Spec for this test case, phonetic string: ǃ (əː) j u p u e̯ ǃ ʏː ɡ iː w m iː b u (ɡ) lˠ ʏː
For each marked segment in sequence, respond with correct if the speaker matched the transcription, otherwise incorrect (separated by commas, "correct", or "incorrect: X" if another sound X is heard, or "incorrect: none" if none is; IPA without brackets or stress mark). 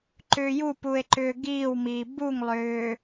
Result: incorrect: ʏː, incorrect: ŋ